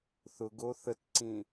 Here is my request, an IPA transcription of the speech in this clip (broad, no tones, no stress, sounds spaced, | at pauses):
θ ʊ ɡ o θ ə t ǀ ĩ